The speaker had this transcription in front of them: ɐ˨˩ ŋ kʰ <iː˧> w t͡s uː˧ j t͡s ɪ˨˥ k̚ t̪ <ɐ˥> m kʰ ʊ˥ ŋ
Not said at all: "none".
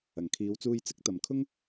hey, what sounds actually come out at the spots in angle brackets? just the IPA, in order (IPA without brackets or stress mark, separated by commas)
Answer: iː˨˧, ɐ˨